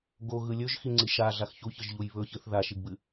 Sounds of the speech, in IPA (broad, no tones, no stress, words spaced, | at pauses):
ɡoɣɯ lʲɵʒxiŋ͡ǀi ʃaɮax çuçɯʒʎuj βɵçɨθ ðaʃiɡbɨ